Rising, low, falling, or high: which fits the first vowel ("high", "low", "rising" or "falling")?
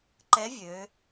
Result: rising